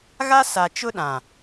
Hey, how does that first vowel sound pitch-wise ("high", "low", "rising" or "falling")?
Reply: high